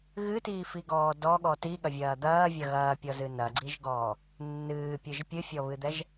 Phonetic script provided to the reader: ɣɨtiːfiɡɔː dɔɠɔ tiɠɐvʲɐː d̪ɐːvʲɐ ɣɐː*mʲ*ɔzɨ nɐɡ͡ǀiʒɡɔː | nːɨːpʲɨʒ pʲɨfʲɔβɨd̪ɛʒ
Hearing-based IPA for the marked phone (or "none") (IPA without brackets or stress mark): pʲ